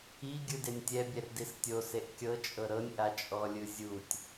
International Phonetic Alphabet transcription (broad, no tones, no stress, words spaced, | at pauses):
i ɡʲɯdenʲtʲɛ bʲɛrdistʲo seʔkʲɤ t͡ʃʼɤɾɤnʲ ʔat͡ʃʼɔlʲɯzʲutʲ